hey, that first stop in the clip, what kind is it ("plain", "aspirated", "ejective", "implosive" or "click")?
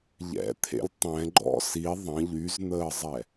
aspirated